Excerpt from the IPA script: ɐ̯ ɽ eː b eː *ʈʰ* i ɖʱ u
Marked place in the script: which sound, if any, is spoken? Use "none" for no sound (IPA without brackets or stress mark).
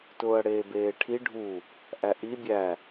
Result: ʈʰ